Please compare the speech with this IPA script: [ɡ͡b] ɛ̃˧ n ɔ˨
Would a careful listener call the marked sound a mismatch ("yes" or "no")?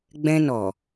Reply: no